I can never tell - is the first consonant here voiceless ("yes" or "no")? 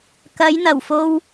yes